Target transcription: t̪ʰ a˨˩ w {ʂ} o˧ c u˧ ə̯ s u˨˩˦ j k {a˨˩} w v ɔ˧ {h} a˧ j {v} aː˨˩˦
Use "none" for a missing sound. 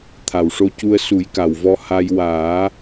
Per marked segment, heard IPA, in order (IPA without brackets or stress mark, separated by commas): ʂ, a˨˩, h, w